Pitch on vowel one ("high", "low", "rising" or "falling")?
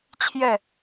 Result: falling